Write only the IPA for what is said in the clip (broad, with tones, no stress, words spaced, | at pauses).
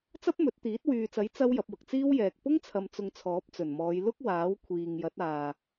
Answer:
t͡sɐ˥p̚mɵ˨˥t̚t̪iː˨˥t̚ wyː˨t͡sɐ˨˥j t͡sɐ˥w jɐ˨˥p̚wʊ˨k̚ t͡siː˥wjɛː˨k̚ pʊ˥ŋ t͡sʰɐ˧m t͡sʊ˧ŋt͡sʰɔː˨˥p̚t͡sɵ˨˩nmɔː˨˧j lʊ˥k̚ waː˨˥w kʷʰiː˨ŋjɐ˨˥t̚ aː˨